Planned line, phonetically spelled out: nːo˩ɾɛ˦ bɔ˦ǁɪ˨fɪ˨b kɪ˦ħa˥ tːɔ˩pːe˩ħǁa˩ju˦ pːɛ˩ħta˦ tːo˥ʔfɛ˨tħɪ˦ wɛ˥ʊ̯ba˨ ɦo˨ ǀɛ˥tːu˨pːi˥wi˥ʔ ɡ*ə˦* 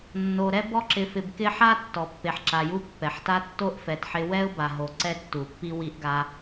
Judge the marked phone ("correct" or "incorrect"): incorrect